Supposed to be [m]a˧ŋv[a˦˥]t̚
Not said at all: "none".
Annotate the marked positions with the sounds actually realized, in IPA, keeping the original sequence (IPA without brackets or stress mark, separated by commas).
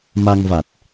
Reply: m, a˨˩